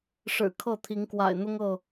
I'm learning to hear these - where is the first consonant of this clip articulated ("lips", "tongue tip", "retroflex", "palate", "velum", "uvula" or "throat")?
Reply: retroflex